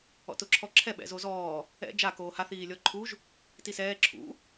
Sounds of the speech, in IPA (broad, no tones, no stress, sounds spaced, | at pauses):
ɔ̰ t ʊ ǁʰ ɔ ǁʰ ɛ ɓ ɛ̰ z o z ɔː | ɛ̰ d͡ʒ a k oː h a θ iː lʲ ɔ ǃʰ u ʒ | t i s ɛː ǁʰ ṵ